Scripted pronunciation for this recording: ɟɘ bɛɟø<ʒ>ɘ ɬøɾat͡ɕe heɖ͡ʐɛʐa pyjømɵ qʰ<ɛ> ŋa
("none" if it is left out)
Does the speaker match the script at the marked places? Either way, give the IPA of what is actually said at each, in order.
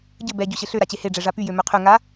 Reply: ɕ, ø

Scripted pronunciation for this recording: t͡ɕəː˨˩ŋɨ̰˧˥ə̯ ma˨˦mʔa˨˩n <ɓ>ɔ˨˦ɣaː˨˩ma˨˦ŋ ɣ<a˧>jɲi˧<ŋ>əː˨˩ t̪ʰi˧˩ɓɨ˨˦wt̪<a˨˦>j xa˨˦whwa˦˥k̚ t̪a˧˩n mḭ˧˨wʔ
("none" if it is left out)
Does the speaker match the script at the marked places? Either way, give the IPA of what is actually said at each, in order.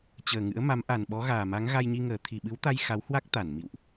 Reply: ɓ, a˧, ŋ, a˧

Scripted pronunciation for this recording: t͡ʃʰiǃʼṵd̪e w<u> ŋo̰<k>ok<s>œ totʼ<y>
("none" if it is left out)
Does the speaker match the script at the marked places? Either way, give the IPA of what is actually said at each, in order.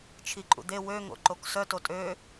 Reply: ø, ǃ, s, ø

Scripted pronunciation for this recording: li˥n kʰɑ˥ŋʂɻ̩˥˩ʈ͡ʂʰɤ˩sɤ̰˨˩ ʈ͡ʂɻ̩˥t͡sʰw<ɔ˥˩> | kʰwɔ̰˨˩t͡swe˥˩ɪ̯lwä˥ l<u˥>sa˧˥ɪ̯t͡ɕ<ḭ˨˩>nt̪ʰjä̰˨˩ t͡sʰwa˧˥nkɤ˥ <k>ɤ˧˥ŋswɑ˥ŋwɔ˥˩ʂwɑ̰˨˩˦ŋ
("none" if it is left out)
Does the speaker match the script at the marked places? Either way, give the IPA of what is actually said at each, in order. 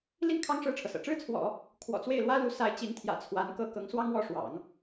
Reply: ɔ̰˨˩˦, u˧˥, i˧˥, k

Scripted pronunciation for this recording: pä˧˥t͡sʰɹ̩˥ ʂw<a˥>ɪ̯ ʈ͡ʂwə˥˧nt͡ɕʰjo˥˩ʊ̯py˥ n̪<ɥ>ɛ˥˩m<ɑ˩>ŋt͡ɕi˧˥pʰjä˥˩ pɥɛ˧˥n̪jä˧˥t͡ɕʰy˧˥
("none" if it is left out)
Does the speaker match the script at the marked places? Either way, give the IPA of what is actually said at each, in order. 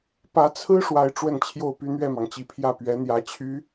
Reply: a˥, ɥ, ɑ˩

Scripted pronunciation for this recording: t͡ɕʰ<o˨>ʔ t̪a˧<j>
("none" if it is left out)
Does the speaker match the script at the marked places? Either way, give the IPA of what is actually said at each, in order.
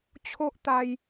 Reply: o˦, j

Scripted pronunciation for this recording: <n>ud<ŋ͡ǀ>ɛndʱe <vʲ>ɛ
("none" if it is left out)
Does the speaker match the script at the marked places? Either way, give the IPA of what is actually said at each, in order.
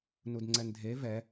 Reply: n, ŋ͡ǀ, v

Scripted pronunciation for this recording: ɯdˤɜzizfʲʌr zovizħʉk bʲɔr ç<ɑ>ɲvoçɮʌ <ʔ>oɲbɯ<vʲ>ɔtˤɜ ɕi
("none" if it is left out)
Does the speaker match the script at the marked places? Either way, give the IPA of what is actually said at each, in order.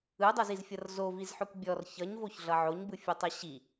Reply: ʌ, ʕ, fʲ

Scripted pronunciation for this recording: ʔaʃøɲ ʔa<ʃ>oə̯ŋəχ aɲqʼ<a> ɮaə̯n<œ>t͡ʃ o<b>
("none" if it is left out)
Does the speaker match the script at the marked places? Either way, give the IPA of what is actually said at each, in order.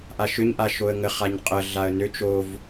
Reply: ʃ, ə, ø, v

